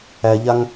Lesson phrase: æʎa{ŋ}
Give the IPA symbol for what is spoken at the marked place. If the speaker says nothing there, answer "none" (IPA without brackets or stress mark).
ŋ